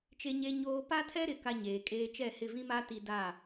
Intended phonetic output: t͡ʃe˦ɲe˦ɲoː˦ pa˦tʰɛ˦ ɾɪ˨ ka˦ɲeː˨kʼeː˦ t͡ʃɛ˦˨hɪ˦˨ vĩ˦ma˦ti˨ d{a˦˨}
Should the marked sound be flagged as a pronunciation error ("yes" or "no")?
no